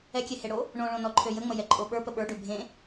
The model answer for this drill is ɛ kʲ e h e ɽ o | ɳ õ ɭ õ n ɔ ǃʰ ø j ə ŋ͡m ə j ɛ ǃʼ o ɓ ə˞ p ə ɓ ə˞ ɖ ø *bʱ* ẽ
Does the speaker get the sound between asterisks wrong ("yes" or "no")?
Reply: no